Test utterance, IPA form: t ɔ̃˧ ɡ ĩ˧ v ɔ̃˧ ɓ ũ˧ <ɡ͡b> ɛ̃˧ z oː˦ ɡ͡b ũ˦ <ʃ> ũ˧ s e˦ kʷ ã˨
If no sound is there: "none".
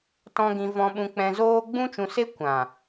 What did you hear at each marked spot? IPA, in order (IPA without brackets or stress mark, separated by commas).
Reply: k͡p, t͡ʃ